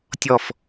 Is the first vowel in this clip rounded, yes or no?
yes